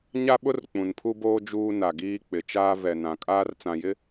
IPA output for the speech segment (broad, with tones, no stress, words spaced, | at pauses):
ɲa˦ɓʊ˦r k͡pũ˨npʰu˦boː˦ d͡ʒuː˦na˨ɡiː˦k͡pɪ˨ t͡ʃaː˦vɛ˨nã˨ kʼaː˦rt͡sã˨jɪ˦